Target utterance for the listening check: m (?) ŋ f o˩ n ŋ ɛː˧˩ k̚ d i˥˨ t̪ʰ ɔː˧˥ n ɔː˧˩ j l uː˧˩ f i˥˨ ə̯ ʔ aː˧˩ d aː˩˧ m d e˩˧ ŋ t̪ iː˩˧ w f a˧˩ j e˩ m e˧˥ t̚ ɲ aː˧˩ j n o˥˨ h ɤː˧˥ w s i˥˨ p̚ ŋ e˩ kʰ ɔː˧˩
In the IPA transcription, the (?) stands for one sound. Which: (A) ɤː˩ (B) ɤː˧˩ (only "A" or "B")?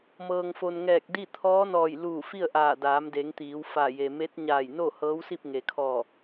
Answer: A